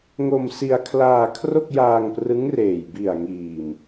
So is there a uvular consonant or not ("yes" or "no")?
no